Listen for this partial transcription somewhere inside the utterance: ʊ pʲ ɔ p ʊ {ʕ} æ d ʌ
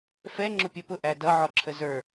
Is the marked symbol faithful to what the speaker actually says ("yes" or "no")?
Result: no